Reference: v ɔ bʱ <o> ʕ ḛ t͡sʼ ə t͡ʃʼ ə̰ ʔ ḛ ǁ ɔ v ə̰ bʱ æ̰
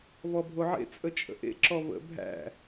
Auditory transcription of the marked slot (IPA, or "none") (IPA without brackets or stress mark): o